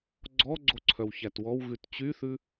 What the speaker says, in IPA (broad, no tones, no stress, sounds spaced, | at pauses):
ɡ͡ǀ ɔ ɡ͡ǀ o ǀʰ œ w ç æ t w ɔ w ɣ ʉ t t͡ɕ y θ ʉ